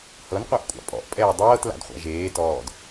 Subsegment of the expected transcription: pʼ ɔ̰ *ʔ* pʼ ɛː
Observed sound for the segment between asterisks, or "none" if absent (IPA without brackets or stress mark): ʔ